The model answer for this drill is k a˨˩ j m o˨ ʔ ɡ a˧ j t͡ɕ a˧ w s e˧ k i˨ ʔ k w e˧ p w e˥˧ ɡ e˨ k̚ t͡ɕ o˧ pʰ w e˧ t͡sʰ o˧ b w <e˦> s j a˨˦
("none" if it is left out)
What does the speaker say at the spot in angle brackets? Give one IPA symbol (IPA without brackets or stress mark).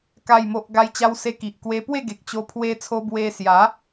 e˧